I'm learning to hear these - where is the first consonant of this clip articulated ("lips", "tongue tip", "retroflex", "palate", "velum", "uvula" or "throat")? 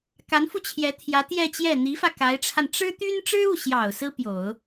velum